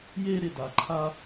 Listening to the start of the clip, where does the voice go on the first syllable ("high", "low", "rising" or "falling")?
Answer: high